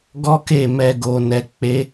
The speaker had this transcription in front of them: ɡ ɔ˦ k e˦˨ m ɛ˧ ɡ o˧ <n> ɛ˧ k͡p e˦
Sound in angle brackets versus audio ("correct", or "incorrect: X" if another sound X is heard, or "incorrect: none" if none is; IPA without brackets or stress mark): correct